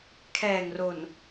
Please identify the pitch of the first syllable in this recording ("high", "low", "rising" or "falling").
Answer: low